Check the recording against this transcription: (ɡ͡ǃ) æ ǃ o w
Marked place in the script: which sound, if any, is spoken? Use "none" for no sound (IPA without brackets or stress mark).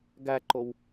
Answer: ɡ